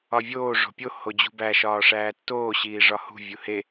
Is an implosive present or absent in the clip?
absent